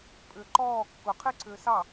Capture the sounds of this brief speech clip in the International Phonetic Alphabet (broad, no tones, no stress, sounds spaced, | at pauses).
pʼ ʏ ǃ ɔː kː ʊ qʰ e ǀʰ ʏː s ɑ